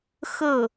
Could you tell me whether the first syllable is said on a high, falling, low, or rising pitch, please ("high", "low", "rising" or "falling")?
falling